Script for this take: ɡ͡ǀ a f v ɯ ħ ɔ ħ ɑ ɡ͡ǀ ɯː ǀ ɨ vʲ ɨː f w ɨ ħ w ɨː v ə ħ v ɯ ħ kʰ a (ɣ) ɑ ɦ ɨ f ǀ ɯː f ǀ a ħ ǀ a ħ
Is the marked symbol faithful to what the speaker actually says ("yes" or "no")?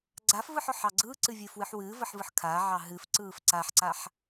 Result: no